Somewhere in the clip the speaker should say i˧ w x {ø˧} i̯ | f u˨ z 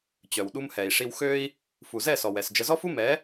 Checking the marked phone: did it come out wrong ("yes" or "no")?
no